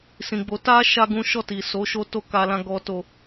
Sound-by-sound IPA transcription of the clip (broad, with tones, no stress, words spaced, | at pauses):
sĩ˨ɡ͡bo˨˦ ta˧ ʃa˦ɡũ˦ ʃɔ˦˨ti˨so˨˦ ʃo˦ to˦˨ka˧lã˧ ɡɔ˦to˧